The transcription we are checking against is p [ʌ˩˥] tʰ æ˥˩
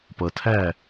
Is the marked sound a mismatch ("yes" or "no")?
yes